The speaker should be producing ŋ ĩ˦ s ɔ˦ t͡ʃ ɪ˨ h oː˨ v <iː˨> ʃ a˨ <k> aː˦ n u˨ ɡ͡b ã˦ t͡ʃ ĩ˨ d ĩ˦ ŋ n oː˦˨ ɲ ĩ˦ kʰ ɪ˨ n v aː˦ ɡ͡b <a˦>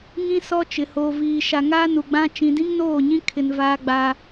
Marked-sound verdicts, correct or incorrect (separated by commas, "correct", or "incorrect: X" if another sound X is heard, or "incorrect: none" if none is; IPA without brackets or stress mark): correct, incorrect: ŋ, correct